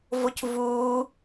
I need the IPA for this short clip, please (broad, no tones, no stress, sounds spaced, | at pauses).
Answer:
v o c v uː